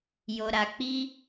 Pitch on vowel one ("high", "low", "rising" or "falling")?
low